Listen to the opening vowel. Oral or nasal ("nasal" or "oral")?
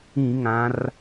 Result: nasal